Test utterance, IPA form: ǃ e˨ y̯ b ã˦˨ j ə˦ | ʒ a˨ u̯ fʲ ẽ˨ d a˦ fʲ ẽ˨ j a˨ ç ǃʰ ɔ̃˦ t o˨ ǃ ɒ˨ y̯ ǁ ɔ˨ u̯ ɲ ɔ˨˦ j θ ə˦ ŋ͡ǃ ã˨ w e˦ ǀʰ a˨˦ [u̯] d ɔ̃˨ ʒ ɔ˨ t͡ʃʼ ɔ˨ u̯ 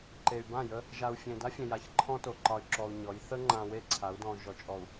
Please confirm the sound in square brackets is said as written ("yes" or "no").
yes